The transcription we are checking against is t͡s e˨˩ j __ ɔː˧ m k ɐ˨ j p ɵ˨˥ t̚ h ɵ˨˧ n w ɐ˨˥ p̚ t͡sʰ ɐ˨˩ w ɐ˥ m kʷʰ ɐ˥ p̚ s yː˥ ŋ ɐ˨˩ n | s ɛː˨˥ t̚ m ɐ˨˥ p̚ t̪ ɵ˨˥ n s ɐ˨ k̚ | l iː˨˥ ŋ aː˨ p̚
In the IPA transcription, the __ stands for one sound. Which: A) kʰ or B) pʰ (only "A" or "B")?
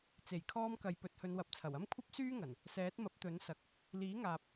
A